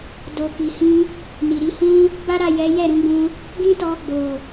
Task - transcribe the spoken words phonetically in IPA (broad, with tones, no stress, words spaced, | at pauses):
do˨ki˨hĩ˧ | ni˨ɾi˨˦hũ˦ | ba˦ɾa˦˨jɛ˨˦ jɛ˦˨ɾũ˨˦ɡ͡bũ˧ | ɡĩ˦tɔ˧ ɡ͡bo˨